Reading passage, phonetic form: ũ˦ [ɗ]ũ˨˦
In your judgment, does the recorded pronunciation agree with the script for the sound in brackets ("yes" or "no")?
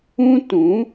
no